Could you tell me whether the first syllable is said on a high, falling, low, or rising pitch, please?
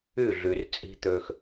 falling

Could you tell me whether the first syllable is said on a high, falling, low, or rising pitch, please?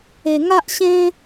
high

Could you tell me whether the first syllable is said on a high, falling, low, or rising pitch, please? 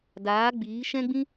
rising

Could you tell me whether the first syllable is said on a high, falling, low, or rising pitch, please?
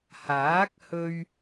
rising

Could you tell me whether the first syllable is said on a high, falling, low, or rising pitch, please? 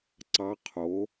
rising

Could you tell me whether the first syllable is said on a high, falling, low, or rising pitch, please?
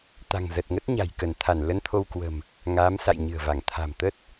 low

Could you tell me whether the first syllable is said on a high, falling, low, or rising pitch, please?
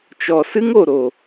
low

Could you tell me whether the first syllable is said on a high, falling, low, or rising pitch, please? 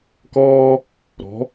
high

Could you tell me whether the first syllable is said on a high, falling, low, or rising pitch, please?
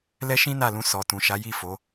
high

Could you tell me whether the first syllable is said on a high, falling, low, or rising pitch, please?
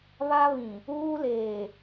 high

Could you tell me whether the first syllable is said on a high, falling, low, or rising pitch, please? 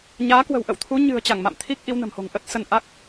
rising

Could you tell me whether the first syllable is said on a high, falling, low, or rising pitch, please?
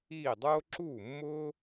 falling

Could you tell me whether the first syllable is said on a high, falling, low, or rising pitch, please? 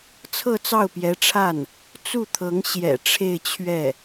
falling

